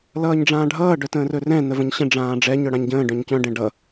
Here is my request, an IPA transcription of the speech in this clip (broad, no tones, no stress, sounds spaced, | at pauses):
l ʌː ɲ ɖ͡ʐ ãː ɖʱ ʌː ɖ œ t ə̃ː r ɵ r ɛ̃ n ə v ə̃ ɲ ɕ ə̃ ɖ͡ʐ ãː ɖ͡ʐ ɛ ɲ œ ɽ ã ɲ ɟ ə̃ː ɖ œ̃ ɲ c œ̃ ɖ ɛ̃ ɖ ʌ